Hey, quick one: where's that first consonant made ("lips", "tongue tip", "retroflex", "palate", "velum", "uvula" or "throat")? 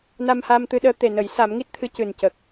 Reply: tongue tip